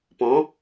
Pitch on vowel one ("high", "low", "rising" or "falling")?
rising